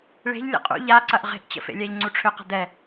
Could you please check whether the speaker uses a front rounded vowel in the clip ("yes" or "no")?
yes